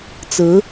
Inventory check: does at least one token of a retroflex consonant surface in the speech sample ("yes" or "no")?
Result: no